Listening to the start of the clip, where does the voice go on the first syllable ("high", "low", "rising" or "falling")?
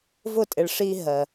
falling